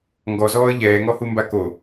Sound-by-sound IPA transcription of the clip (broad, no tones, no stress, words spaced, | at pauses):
ŋɡɔzɔːə̯ ʎɛːŋɔhumba ko